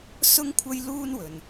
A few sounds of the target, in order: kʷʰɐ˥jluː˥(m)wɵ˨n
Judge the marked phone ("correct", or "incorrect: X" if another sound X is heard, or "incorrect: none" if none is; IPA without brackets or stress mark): incorrect: n